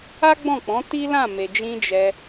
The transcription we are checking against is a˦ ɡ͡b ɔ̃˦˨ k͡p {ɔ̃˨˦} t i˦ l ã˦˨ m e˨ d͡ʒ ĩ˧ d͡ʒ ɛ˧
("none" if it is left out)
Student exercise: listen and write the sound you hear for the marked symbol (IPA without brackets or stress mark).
ɔ̃˨˦